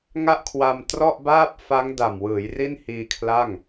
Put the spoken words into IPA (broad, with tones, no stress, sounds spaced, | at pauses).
ŋ a˥˩ ʔ kʰ w a˧ m t r ɔ˥˩ ʔ b aː˥˩ p̚ f a˦˥ ŋ d a˨˩ m w ɯː˩˦ j r i˥˩ n h iː˧ kʰ l a˥˩ ŋ